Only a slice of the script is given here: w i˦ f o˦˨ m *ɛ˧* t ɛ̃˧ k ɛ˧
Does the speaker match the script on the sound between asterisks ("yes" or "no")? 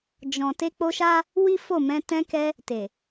no